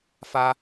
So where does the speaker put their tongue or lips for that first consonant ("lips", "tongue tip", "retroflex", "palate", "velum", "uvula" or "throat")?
lips